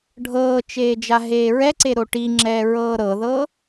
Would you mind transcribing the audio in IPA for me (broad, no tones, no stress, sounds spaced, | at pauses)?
ɖʱ ɤː t͡ʃ eː d͡ʒ a ɦ eː ɹ ɛ ǀ e ɾ o ʈ i ŋ͡ǁ ɛː ɹ ɤː ɾ ɤ ð ɤː